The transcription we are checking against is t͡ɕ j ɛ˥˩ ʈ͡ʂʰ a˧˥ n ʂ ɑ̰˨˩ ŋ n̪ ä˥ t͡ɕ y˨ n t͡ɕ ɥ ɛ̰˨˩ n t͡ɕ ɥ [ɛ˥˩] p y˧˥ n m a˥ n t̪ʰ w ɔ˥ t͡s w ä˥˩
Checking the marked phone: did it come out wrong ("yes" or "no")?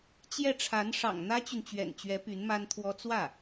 yes